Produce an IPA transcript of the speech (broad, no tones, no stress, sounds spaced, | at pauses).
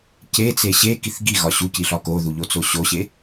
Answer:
c e t͡s e ɕ e k i θ ɡ i ɣ ɒ ɕ u c i ɬ ɒ k o ð u ʎ o t͡s o ɕ o ɕ e